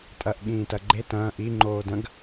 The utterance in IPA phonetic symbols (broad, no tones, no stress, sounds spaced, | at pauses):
tʼ ɐ ʔ ɠ ĩː t ɐ ɡ͡ǃ e t ɐ̃ː ʔ i ŋ͡ǃ oː d ɐ̃ ɡ